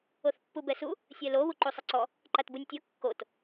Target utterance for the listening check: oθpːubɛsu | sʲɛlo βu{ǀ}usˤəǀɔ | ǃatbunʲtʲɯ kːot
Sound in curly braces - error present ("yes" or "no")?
yes